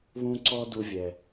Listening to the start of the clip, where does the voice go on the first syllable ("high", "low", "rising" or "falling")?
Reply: high